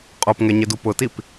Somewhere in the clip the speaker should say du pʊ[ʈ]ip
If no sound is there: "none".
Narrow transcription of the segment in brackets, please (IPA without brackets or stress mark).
t